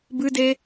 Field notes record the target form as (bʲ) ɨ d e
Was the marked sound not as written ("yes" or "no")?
yes